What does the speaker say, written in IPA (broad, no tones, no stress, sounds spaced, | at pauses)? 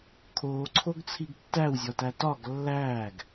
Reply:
kʰ oː ǀʰ o ɡ t͡sʰ i ɡ tː æ w zʲ ɒ t æ t ɒ ɡ lː æː ɡ